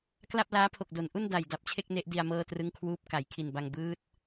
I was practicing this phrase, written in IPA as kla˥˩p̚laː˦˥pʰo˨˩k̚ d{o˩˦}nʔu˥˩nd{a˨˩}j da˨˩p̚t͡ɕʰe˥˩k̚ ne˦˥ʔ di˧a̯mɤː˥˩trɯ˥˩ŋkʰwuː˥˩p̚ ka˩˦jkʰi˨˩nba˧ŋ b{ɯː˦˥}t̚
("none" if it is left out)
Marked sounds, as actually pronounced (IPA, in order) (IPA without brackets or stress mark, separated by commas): o˩˦, a˨˩, ɯː˦˥